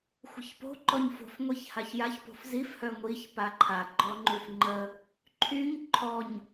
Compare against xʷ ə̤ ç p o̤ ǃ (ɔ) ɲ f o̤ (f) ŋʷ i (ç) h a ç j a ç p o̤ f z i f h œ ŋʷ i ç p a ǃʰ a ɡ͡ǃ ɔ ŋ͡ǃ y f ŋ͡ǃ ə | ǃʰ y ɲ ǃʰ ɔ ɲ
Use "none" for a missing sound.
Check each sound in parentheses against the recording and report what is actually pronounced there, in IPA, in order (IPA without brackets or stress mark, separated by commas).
ɔ, f, ç